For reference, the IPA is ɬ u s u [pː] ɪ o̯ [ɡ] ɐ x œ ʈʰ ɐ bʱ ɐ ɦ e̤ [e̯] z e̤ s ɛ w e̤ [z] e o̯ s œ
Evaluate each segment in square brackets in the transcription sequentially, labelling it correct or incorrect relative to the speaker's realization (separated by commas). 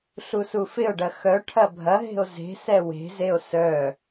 incorrect, incorrect, incorrect, correct